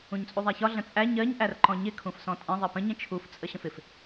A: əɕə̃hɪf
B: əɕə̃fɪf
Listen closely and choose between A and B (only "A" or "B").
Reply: B